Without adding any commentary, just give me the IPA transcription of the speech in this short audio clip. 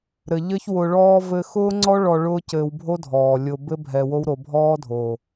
ɾɘ˨ ʎɘ˦çwʊ˧ɭɔː˦ vɘ˧xʊː˦ŋ͡ǀɔ˦ ɭɔ˧ ɭʊː˦cɘː˧w bʱo˦dʱɔː˨ lʲʊ˧ bɘ˦ bʱɛ˧wo˦wɾo˧ bʱɔː˦dʱo˨

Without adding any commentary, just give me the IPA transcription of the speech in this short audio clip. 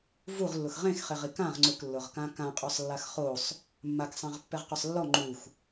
vuʁlːʊx ʁẽxχeʁ ikãʁ ŋ͡ǀʊklːʊʁkã kãqʼɔsˤlːax χosˤ | mːaksˤãʁ pːɛʁqʊsˤlːɔ ŋ͡ǃux

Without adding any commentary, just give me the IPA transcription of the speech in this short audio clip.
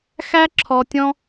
xæ˦ǁʰɔ˧tʲɔ̃˦

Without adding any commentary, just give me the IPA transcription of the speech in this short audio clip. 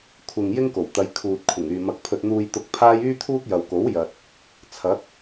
kʷʰɪ˨ŋ jɪ˥ŋko˨˩wt̪ɐ˨˧j kʰuː˨t̚kʷʰɪ˨˩ŋ yː˨mɐ˧k̚pʰɵ˧t̚ n̪uː˧jt̪ʊ˧k̚ pʰaː˥j yː˥t̪ʰuː˥k̚jɐ˨wko˨˥w jɐ˧t̚ | t͡sʰɐ˨˥k̚

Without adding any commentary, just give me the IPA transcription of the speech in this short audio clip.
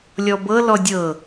lʲɔbɤlɔ dʲɤ

